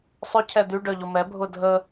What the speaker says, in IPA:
sˤ ʏ cʰ ɛ d̪ y ɖ œ ʎ ʊ m ɛ bʱ ʊ dʱ ə

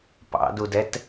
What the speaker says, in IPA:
p ɑ̰ d u d ɛ t

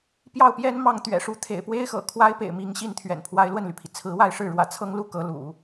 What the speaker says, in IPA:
p j ɑ˥˩ ʊ̯ p j ɛ˥ n m ɑ˥˩ ŋ t̪ ɥ ɛ̰˨˩ ʂ u˧˥ t̪ʰ ḛ˨˩ ɪ̯ p w e˥ ɪ̯ x ɤ̰˨˩ kʰ w a˥ ɪ̯ p ḛ˨˩ ɪ̯ m i˧˥ ŋ ɕ i˥ n t̪ʰ ɥ ɛ̰˨˩ n pʰ w a˥ ɪ̯ l w ə˥˩ n l y˩ pʰ i˩ t͡sʰ ɹ̩˧˥ w a˥˧ ɪ̯ ʂ ɻ̩˥˩ ɻ w ä̰˨˩ t͡sʰ ɤ˥ ŋ l u˥ k ɤ˧˥ l ṵ˨˩˦

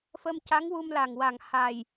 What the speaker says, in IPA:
f ə˧ m c a˧˥ ŋ w u˧ m l a˨˩ ŋ w a˨˩ ŋ h a˨˩ j

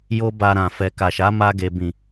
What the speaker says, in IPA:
j o˦ b a˧ ɾ ã˨ f ɛ˨ k a˨ ʃ a˨˦ m a˧ ɡ e˨ b ĩ˨

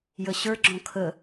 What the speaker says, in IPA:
j ə ɕ ə˞ ɡ͡ǁ ɔ̃ kʰ ə

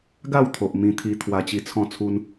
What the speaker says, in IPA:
ɡ a˥˧ w t̪ʰ o˨ ʔ m ĩ˧ t̪ʰ i˧ t̪ʰ w a˧ t͡ɕ i˧ t͡sʰ ɔ̃˥˧ t͡sʰ u˦ n

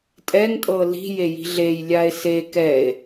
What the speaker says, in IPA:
tʼ ɛ ŋ tʼ ɤ l i̤ j e j i̤ ɮ e j lʲ a e̯ s e k ɛ e̯

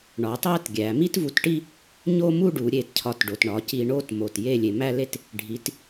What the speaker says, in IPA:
ɳ ɒ˩˧ tˤ æ˥˧ t ɡʲ æ˩˧ m i˥ t v u˧ t ʈ i˥˧ | ɲ o˥˧ m u˥˧ ɖ u˩˧ ɾʲ e˧˩ t cʰ ɒ˧˩ t ɖ o˩˧ t ɳ ɒ˩˧ c i˧ ɳ o˥˧ t m o˧˩ t j e˥˧ lʲ e˧ m æ˥˧ l e˥˧ t | ɖʱ i˩˧ t

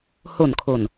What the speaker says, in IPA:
h o˨˩ n kʰ o˨˩ n

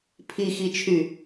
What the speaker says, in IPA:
pʰ i x i t͡ʃʰ y

